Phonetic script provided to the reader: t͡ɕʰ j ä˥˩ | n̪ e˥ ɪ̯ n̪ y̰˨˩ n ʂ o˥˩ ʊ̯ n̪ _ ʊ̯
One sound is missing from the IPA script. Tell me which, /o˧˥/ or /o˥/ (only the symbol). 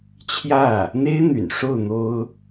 o˥